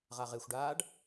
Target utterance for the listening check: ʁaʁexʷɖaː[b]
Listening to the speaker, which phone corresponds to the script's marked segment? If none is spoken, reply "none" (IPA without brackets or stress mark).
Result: ɖ